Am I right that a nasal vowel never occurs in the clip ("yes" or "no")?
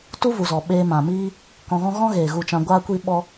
no